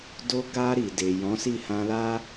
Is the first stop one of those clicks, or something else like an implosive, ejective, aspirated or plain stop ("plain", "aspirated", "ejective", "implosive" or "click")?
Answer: plain